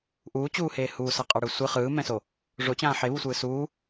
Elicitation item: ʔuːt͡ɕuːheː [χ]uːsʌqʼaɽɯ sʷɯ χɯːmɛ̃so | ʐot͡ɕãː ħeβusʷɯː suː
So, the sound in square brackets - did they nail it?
no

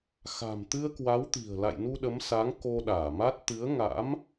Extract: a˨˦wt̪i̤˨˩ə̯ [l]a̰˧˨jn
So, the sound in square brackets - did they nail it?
yes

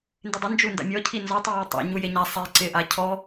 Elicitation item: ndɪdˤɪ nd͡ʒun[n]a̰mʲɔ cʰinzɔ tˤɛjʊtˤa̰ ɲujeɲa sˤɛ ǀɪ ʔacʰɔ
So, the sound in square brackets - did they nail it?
no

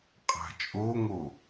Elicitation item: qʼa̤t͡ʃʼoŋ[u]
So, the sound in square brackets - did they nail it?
no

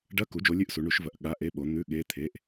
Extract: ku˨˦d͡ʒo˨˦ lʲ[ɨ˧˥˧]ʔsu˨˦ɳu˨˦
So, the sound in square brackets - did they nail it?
yes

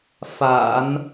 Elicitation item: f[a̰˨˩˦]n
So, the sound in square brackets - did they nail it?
yes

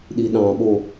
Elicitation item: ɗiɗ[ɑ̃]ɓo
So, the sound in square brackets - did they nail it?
yes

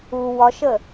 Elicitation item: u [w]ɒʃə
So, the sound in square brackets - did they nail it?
yes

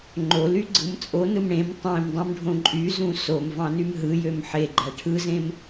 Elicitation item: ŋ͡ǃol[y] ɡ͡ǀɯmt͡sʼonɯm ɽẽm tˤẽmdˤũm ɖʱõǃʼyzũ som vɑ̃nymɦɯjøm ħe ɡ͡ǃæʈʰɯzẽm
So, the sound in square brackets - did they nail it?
yes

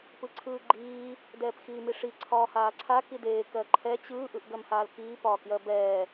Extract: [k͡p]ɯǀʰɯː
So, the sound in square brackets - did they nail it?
no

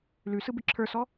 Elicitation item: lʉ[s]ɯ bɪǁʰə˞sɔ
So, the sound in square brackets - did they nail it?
yes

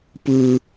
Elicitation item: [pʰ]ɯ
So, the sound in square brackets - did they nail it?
no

